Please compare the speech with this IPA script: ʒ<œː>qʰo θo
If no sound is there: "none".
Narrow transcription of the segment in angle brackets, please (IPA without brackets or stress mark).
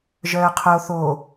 œː